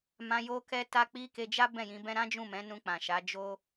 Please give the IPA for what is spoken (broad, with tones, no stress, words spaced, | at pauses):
mã˧ jo˧kɛ˧ ta˧k͡pi˧ ke˧d͡ʒa˦ bɛ̃˦˨jĩ˨˦bɛ̃˦ ɾã˦d͡ʒũ˦˨mɛ̃˨˦ nũ˧k͡pã˨ʃa˨˦ d͡ʒo˦